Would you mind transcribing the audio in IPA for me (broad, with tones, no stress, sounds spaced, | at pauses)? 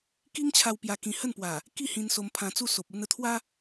k i˦ ŋ t͡ɕʰ a˧ w p j a˧ k ĩ˧ h ə˥˧ n p w a˨˩ | k i˥˧ h ĩ˧ n s o˧ m pʰ ã˧ t͡s u˥˧ s o˨ p̚ u˧ n ə˨˩ t̪ʰ w a˦